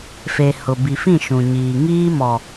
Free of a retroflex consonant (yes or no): yes